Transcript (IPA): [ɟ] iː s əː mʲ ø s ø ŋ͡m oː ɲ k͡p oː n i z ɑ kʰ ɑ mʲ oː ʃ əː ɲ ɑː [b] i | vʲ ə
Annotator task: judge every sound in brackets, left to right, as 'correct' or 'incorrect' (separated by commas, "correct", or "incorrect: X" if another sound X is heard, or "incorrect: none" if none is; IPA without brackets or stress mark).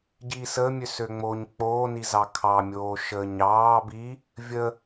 correct, correct